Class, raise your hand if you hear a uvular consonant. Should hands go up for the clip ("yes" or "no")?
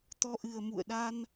no